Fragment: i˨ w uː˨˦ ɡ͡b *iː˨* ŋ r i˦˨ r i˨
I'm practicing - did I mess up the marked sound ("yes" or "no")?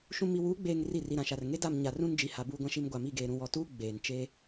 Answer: yes